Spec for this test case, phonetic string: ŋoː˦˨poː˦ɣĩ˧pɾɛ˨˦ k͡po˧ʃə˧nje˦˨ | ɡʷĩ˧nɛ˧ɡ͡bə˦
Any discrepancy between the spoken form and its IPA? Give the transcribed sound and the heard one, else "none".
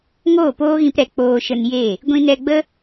o˧ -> oː˧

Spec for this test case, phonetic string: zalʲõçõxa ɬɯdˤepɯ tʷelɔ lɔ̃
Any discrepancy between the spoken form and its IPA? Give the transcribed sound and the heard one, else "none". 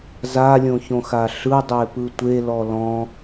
none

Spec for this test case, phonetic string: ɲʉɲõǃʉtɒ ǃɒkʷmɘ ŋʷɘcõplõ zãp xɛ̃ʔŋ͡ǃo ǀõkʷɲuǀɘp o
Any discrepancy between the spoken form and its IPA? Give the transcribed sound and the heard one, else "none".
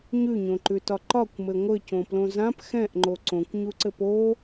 none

